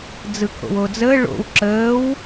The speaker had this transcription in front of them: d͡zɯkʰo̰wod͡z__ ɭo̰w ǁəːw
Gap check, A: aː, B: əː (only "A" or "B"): B